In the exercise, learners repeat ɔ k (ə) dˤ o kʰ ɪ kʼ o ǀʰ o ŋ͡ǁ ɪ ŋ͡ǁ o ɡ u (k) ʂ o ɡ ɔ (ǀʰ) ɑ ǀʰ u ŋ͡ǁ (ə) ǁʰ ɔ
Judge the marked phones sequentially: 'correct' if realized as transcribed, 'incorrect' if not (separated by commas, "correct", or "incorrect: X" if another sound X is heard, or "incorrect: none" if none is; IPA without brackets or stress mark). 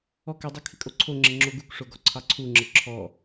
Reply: incorrect: ɪ, correct, correct, correct